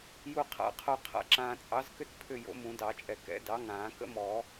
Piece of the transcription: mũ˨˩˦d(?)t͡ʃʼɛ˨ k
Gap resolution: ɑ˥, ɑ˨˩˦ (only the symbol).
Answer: ɑ˨˩˦